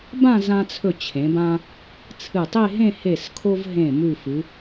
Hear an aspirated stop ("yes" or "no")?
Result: yes